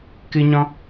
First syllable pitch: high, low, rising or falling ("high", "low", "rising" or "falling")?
high